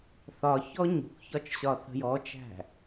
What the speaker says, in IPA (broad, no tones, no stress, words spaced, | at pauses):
θɒçɔ ɲṳkçɒt͡ʃɕɒ θə̤jɔt͡ʃæ̤